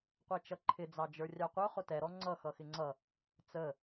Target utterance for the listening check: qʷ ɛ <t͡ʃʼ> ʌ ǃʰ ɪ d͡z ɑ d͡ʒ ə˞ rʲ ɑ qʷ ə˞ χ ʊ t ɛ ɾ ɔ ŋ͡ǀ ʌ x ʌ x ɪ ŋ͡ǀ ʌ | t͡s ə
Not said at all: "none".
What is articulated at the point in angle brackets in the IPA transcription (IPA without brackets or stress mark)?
t͡ʃ